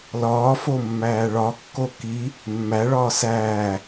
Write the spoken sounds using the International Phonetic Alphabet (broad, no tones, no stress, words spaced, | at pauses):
lɒːfo mːæːɭɒkːo ki | mːæɭɒː sæː